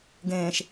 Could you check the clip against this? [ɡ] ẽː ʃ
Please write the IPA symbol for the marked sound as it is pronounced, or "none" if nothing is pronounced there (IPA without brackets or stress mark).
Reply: ɡ